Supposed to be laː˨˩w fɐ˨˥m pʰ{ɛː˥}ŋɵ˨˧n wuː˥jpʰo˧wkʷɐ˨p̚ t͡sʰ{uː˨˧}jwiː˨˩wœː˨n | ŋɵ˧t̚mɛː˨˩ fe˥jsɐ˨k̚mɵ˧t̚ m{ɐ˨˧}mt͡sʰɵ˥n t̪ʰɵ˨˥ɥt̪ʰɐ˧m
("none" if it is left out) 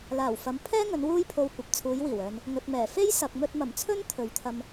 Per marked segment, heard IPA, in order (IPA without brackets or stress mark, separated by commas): ɛː˥, uː˨˧, ɐ˨˩